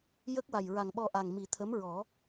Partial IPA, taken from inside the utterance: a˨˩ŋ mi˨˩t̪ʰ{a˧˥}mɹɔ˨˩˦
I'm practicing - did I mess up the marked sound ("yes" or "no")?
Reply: yes